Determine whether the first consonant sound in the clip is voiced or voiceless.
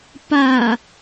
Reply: voiceless